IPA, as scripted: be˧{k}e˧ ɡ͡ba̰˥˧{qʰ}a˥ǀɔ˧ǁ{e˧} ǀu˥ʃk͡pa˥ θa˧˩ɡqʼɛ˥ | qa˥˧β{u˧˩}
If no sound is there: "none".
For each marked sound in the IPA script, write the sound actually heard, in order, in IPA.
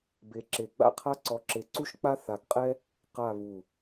ǁ, qʰ, e˧, u˧˩

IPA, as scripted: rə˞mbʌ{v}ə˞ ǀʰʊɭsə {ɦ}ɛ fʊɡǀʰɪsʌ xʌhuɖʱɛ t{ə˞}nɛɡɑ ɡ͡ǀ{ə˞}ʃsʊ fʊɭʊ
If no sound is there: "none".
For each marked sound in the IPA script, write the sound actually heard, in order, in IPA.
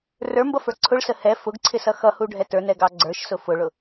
f, h, ə˞, ə˞

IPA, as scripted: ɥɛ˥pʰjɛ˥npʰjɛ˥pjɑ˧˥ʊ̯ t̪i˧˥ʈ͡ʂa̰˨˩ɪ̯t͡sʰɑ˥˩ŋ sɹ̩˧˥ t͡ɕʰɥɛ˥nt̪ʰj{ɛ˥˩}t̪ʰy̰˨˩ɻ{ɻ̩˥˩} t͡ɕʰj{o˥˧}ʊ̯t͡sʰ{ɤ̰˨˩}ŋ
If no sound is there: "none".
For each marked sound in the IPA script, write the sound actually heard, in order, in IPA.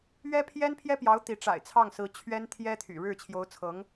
ɛ˥, ɻ̩˥˩, o˧˥, ɤ˧˥

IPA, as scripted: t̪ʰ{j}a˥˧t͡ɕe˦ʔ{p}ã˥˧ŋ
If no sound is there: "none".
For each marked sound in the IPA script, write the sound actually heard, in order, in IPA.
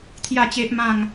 j, m

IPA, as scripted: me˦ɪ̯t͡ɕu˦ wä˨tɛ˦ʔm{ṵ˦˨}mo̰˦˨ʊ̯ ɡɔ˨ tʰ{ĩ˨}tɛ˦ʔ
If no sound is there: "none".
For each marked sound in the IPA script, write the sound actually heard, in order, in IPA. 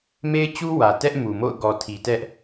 u˨, i˨

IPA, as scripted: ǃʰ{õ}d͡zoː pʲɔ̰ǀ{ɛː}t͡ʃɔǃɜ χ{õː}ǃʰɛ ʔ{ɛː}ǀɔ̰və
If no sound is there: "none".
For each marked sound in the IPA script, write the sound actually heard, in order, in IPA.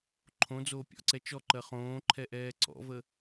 õ, ɛ, õː, ɛː

